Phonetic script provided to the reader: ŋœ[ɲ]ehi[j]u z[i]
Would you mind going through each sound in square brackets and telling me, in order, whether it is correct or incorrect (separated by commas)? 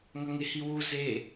incorrect, incorrect, incorrect